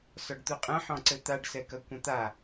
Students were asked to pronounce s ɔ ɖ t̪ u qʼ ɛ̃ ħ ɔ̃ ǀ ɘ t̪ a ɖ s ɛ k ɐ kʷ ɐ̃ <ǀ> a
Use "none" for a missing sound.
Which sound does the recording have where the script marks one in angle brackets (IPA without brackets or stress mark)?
t̪